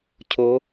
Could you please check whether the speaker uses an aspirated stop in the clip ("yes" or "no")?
yes